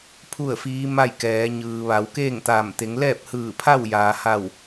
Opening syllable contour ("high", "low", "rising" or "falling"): falling